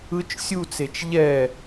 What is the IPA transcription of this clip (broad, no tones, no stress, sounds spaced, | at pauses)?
ɯ t͡ʃ sʲ u t͡s e t͡ʃ ʎ ɛ